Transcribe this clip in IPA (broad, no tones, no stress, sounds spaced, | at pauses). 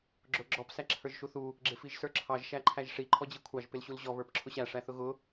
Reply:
ɡ͡ǁ ʊ ɡ͡ǁ ɔ p s æ ǁʰ ə˞ ʒ ʃ u θ u | ɡ͡ǁ ɪ f i ʒ s ə˞ ǁʰ ɑ ʒ ʃ æ ǃʰ æ ʒ ʂ i ǃʰ ɔ d͡ʑ i kʷʰ ɑ ʒ p ɪ l ɕ u l ʑ ɔ β ə˞ p ǁʰ ʊ ɕ æ ʂ æ θ ʊ ɣ ʊ